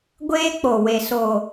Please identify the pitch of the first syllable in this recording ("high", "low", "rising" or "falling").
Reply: high